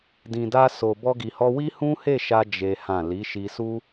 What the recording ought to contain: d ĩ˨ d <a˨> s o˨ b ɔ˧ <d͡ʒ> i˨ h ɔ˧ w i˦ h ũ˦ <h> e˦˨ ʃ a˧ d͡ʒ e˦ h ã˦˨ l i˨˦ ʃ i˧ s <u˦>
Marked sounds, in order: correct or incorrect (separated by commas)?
incorrect, incorrect, correct, correct